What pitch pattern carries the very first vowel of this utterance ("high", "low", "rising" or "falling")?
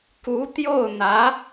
rising